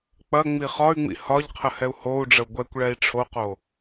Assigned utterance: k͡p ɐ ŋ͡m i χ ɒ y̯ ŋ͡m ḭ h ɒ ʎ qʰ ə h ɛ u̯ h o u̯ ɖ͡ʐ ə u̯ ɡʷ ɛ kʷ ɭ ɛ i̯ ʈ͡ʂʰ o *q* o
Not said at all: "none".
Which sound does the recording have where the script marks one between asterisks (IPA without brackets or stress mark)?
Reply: q